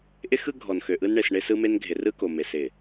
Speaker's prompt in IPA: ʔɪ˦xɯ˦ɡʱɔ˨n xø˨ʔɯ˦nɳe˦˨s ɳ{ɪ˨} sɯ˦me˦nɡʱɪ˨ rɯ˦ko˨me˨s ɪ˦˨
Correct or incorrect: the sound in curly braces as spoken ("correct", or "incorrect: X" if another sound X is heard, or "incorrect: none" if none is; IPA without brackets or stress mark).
incorrect: ɪ˦